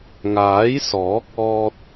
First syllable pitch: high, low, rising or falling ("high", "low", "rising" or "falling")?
rising